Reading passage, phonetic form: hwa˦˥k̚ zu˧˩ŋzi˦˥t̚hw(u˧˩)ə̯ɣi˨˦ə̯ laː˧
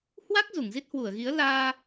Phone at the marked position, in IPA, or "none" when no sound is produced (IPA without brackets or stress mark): u˧˩